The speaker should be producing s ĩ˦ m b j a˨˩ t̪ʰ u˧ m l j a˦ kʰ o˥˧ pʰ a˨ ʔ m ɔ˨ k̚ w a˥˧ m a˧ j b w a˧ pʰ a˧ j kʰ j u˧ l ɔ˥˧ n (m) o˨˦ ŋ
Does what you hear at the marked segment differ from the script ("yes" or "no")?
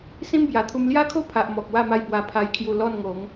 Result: yes